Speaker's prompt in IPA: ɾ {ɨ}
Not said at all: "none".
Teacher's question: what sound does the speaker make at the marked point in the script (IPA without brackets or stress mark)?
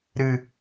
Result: ɨ